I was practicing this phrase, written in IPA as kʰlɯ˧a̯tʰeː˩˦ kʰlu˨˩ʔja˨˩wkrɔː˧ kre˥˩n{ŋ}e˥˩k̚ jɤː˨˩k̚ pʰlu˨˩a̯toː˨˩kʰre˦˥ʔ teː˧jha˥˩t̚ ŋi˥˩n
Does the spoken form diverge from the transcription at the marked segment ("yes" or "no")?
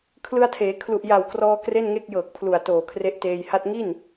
no